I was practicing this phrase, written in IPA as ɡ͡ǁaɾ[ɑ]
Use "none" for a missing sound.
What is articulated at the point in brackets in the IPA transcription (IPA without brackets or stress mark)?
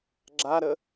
ə